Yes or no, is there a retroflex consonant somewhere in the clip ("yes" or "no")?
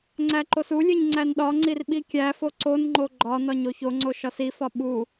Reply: no